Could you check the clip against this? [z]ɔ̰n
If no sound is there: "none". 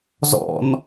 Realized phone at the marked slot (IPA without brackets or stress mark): z